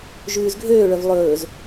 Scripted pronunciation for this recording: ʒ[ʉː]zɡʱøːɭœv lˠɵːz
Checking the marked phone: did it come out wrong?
no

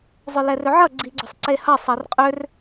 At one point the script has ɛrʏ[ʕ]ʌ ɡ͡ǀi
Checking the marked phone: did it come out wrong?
no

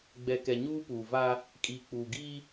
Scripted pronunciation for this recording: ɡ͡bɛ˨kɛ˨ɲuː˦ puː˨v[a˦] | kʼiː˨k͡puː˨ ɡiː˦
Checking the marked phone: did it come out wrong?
no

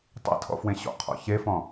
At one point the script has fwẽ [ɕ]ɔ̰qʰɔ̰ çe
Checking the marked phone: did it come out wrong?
no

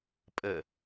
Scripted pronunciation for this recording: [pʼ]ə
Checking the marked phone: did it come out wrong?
no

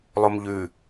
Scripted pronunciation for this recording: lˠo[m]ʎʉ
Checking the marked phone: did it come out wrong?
no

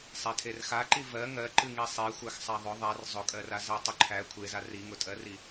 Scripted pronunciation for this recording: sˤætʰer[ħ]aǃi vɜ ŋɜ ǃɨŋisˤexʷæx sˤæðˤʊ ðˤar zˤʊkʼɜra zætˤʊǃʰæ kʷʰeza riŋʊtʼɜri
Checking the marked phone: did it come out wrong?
yes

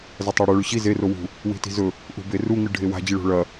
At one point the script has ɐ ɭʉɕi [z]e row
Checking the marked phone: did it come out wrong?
no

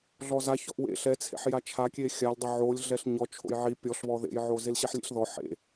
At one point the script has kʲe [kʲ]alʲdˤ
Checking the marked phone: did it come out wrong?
yes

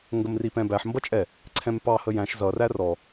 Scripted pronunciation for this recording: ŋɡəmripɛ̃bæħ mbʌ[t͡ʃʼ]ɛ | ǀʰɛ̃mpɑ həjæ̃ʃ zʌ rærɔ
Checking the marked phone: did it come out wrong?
no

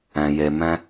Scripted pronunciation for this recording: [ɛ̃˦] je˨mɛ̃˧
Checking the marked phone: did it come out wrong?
yes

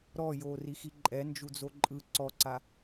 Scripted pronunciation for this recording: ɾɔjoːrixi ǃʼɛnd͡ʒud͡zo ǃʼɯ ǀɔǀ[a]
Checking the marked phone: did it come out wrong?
no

